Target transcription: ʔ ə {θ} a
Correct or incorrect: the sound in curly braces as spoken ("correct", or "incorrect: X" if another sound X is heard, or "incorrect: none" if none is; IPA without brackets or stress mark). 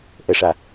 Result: incorrect: ʂ